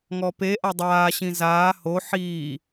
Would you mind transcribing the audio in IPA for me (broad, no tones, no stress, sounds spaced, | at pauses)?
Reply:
ŋ ɔ p e ʔ a dˤ aː ɕ ĩ z aː h o ħ iː